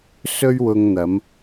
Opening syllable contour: high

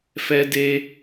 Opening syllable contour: high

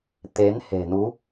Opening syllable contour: rising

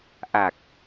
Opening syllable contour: low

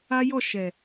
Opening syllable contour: high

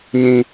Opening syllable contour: high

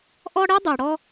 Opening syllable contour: high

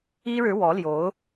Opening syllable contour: high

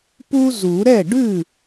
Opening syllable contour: high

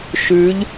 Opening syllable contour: rising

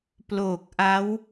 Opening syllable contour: low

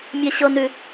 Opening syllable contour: high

